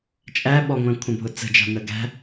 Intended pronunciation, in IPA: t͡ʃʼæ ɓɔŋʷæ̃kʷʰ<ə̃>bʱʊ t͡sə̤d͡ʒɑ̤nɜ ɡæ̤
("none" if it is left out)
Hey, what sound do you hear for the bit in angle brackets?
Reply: ə̃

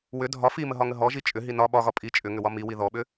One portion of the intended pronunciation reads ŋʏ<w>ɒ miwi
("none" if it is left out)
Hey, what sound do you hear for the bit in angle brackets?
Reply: w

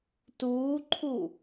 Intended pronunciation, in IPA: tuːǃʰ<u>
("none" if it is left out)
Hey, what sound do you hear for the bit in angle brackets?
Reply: u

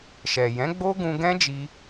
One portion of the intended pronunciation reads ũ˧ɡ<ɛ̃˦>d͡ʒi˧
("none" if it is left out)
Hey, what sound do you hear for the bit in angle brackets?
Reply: ɛ̃˦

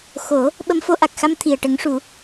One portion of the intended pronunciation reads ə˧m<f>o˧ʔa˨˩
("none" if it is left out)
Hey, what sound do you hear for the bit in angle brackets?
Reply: f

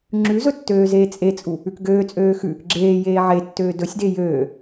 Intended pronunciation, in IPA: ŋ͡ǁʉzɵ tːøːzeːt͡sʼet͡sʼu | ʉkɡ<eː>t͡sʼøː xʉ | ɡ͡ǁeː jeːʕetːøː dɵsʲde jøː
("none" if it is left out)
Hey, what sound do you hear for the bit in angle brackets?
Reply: øː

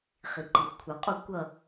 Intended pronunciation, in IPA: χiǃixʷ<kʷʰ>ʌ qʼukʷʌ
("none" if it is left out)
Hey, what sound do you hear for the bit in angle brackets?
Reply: kʷʰ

